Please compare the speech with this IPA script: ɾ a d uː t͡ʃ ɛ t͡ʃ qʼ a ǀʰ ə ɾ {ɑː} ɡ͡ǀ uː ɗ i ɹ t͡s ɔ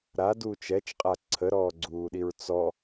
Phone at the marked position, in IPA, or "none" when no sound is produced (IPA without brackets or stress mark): ɔː